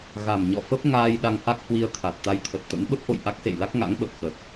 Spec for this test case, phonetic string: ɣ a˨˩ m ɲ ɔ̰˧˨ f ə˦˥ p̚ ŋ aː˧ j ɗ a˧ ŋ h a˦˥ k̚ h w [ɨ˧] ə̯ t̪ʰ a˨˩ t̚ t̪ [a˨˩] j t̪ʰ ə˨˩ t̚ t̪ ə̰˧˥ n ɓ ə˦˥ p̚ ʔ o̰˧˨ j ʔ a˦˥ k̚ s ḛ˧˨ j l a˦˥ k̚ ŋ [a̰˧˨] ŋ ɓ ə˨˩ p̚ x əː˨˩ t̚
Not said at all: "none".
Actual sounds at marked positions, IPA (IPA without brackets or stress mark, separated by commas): i˧, a˧, a̰˧˥